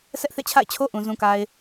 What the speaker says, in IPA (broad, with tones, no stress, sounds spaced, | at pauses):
s ɛ˦ ʔ θ ḛ˦˨ t͡ɕʰ a̰˦˨ ɪ̯ t͡ɕʰ o˦ ʔ ũ˨ z ũ˨ k a˨ ɪ̯